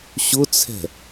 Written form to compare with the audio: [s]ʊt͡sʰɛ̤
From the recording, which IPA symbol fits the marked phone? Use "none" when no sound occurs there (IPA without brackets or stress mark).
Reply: ɕ